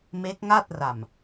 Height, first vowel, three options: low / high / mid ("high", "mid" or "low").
mid